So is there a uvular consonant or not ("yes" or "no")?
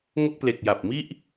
no